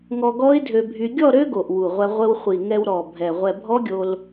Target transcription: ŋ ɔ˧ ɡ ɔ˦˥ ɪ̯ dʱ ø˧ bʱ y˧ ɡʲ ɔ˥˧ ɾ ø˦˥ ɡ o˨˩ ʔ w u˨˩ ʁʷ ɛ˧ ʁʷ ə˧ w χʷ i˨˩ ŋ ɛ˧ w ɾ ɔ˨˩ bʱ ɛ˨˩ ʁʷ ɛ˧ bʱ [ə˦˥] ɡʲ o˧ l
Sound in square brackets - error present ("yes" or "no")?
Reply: yes